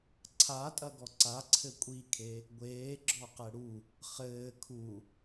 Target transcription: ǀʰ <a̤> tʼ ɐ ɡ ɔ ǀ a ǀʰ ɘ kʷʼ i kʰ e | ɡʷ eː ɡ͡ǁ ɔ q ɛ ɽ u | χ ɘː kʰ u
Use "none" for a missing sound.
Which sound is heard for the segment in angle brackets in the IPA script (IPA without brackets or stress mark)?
a